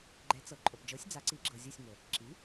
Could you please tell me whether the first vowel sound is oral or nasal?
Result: oral